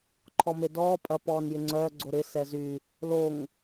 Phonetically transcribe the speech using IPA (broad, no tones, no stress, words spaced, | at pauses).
ǃʰɔmedɔː pʼɐ pɔːnjɪŋ͡ǀœː ɡ͡ǀoɾɪ sɛzy | loŋ